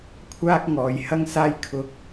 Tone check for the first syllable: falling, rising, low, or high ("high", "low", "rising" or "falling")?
high